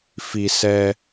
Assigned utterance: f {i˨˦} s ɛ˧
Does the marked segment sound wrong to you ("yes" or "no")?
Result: yes